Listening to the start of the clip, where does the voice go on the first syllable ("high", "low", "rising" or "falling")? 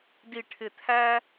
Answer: low